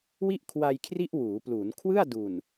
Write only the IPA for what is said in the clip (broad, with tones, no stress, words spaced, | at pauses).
wi˥˩ʔkʰwa˧jkʰri˦˥ʔ wuː˩˦pluː˩˦nkʰwɯ˥˩a̯ du˨˩n